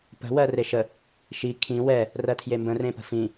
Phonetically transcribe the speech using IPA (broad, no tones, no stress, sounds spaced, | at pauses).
p ə̤ w ɜ r e ʃ ə | ʃ i kʰ ĩ w ɛ | r ɜ tʰ j e m b ə̃ r ẽ p ə̤ f ĩ